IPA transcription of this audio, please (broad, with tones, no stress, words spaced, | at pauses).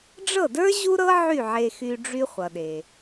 ɖ͡ʐɤ˥˩də˞˥ ʑu˥ɾɤ˥ ʕy˥˩ʕe˧xy˧ ɖ͡ʐy˥χʷʌ˩ɗe˩